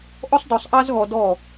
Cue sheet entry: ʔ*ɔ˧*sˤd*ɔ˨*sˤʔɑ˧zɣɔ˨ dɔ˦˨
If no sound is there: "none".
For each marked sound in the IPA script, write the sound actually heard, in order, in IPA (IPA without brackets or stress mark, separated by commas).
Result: ɔ˧, ɔ˨